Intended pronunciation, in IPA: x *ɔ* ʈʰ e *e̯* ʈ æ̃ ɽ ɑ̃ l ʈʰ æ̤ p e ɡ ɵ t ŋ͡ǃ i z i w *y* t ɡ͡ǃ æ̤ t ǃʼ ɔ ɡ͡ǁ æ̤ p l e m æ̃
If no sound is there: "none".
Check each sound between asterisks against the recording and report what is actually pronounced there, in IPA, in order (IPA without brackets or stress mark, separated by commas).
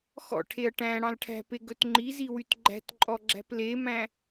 ɔ̰, ɐ̯, y